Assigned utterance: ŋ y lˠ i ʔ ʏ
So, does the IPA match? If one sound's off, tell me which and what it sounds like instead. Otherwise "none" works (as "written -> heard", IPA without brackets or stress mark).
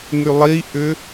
none